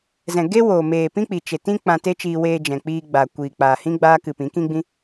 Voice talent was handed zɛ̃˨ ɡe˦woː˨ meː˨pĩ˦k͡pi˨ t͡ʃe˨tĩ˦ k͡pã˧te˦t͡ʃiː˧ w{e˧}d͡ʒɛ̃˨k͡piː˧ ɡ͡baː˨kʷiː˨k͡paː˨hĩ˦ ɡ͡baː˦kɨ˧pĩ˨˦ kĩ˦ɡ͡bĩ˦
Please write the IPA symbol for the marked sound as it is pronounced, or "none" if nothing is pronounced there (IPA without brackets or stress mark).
eː˧